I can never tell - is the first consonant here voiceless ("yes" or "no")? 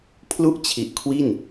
yes